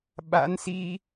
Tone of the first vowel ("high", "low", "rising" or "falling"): rising